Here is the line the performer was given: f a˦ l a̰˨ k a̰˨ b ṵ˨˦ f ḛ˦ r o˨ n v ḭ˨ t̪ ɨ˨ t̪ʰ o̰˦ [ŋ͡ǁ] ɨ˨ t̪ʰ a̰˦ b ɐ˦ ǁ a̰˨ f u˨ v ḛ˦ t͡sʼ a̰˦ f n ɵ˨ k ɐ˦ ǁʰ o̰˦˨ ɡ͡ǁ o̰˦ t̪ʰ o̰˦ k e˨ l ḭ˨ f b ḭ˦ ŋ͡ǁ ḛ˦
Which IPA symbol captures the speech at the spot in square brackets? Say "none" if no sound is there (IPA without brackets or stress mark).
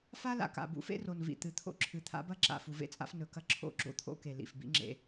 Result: ǁʰ